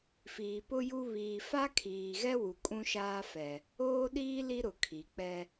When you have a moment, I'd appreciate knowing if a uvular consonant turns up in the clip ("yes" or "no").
no